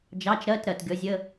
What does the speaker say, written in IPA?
d͡ʒ ɑ˧˥˧ t͡ʃ ɾ ɜ˧˥˧ t ɾ ɜ˩ t ɡʲ ɔ˨˦ zʲ ə˧˥˧

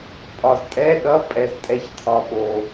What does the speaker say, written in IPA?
pʼ ɒ˨ z tʼ ɛ˧˥˧ ɗ ʌ˧˥˧ pʼ ɛ˨ z tʼ ɛ˨ ç t̪ʰ ɒ˨ ɓ o˨

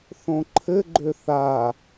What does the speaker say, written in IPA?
θ õ ǃʰ ɘ ɡ͡ǃ ø θ a

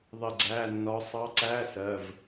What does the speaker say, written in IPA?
ðˤ ɪ˦˨ ɡ͡ǀ æ˧˥˧ nː ɒ˧˥ sˤ ɑ˧˥ ǀ æː˧˥˧ s ɜ˩˧˩ v

